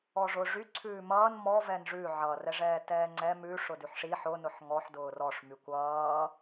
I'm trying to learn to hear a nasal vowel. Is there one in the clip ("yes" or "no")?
no